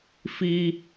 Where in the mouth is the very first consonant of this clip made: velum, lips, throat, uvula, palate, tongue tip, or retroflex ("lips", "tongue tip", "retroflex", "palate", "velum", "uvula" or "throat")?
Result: lips